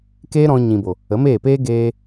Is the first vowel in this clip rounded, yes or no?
no